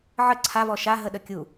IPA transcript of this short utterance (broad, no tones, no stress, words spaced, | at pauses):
ʕə ǀʰavɔ ʃaɦəɗə kʲu